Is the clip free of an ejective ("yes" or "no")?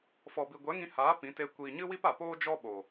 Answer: yes